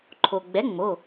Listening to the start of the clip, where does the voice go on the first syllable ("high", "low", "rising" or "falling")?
low